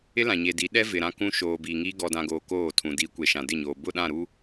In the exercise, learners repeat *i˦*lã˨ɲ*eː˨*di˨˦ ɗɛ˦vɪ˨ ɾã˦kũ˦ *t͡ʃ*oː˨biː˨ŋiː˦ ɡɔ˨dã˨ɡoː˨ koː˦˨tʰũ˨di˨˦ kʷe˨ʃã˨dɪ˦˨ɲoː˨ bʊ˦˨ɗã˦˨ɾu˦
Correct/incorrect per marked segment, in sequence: incorrect, incorrect, incorrect

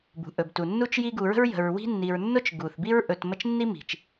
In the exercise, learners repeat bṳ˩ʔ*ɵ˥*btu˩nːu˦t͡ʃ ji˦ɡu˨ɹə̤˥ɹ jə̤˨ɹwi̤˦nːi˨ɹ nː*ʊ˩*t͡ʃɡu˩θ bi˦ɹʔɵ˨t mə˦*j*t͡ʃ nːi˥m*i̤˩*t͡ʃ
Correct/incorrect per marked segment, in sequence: incorrect, incorrect, incorrect, correct

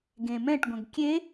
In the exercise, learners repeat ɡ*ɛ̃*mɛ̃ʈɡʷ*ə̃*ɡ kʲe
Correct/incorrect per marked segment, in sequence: incorrect, correct

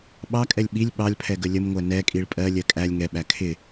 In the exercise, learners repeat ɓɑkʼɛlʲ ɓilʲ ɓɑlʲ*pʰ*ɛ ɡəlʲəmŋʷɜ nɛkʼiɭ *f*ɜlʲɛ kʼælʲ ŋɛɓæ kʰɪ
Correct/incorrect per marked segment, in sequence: correct, incorrect

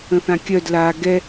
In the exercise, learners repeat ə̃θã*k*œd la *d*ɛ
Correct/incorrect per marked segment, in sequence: incorrect, incorrect

